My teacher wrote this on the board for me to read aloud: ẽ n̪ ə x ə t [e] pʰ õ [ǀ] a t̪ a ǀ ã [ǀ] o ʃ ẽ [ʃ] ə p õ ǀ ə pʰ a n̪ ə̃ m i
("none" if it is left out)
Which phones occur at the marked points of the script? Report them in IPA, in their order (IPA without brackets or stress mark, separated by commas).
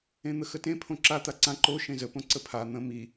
ẽ, ǁ, ǃ, z